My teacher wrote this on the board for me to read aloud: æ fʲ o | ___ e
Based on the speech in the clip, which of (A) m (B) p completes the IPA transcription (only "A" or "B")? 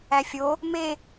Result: A